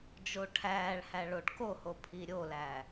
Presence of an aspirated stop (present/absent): present